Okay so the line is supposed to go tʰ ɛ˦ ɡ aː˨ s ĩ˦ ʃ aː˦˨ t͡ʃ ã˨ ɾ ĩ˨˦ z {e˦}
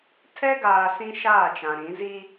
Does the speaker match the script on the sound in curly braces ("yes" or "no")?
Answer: no